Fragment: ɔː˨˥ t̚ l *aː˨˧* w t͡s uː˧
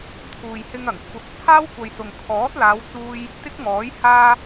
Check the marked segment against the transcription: correct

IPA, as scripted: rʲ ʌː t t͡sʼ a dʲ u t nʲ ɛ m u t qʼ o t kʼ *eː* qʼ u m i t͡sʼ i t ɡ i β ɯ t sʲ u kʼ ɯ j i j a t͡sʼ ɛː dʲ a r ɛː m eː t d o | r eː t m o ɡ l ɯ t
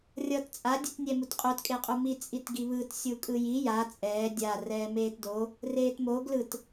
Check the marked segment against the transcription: incorrect: e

